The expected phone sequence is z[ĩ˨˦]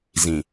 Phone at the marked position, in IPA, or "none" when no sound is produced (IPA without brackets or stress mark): ĩ˨